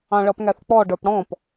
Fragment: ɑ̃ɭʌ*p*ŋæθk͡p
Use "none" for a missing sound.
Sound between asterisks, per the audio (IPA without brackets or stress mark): p